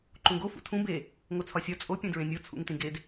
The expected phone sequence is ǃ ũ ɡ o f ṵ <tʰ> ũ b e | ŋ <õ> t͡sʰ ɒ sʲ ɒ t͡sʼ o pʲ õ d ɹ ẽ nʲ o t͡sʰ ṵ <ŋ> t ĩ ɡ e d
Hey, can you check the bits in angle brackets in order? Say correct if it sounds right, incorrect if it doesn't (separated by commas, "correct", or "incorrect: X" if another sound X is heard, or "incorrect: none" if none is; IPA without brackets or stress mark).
correct, incorrect: o, correct